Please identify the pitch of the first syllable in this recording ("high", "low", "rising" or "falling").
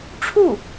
falling